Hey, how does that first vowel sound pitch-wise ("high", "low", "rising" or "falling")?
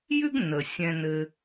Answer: high